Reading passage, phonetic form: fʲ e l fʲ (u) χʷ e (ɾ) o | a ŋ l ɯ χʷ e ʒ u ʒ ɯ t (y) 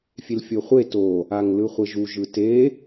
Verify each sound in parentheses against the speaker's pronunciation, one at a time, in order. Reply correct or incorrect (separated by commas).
incorrect, incorrect, incorrect